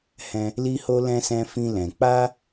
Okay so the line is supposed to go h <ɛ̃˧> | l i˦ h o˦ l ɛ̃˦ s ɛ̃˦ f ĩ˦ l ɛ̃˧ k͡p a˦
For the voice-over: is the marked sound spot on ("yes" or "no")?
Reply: no